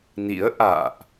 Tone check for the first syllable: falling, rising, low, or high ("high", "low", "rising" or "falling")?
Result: rising